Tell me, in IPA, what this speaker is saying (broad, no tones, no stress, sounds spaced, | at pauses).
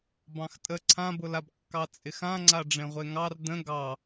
b ɑ̃ x tʼ ə ǀʰ ã b ʊ l a b kː ɑ t͡sʼ ɪ x ã ŋ͡ǀ a ɖ͡ʐ ẽ ʁʷ e ŋ ɑ r d ə̃ ɡ ɑ